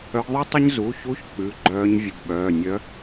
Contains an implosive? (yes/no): yes